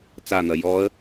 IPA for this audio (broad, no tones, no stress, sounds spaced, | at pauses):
t͡s a n̪ ɐ j ɔː ə̯